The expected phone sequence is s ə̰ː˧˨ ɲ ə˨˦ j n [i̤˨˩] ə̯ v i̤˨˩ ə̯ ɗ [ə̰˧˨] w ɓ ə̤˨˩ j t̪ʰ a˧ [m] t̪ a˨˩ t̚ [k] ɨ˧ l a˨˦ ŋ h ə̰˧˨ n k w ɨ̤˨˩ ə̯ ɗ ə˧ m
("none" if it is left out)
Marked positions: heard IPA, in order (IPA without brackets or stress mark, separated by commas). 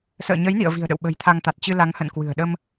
ḭ˧˨, ə̰˧˨, ŋ, t͡ɕ